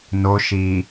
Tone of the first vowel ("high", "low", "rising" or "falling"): low